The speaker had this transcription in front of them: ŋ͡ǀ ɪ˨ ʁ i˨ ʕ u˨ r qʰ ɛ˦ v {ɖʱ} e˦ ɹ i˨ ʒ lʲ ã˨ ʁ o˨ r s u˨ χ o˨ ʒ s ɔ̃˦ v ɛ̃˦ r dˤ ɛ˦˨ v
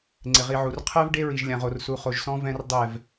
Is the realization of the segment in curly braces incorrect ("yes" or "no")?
yes